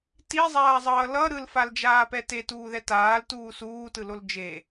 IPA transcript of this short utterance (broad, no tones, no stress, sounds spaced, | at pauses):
t i zˤ aː zˤ ʌː l ʌ ɾ ɯ l f a l d͡ʒ aː p ɛ t e t uː ð ɛ t aː l t uː s uː t ɯ l o l d͡ʒ e